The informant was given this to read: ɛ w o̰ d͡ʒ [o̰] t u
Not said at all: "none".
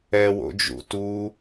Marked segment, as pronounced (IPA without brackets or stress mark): ṵ